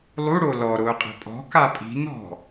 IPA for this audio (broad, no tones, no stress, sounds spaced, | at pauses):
lˠ u ɽ o l ɔ ɾ ʊː qʼ e̤ pʼ ɔ̤ k a pʼ i̤ n ɔ̤